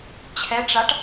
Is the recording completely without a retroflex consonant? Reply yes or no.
no